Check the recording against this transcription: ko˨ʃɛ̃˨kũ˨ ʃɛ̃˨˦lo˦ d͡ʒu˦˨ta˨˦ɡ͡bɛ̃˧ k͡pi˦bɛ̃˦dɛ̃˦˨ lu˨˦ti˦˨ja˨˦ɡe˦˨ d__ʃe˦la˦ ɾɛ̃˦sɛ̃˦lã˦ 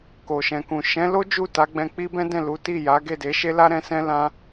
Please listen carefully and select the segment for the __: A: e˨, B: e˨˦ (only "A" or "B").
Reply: B